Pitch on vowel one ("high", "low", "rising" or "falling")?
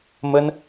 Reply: high